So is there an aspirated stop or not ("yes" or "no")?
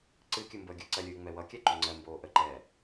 no